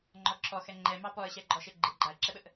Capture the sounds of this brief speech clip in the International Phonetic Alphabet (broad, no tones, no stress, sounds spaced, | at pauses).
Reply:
ŋ͡ǃ ɔ ǁʰ ɔ x ɛ ŋ͡ǃ ɛ m ɑ p ɔ ə̯ ɕ ɛ ɡ͡ǃ ɔ ʃ e ɡ͡ǃ ɪ ɡ͡ǃ a ə̯ ǁ ɛ ɓ ə ʔ